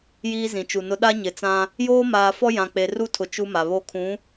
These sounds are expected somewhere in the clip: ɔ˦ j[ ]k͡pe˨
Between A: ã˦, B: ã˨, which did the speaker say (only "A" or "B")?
B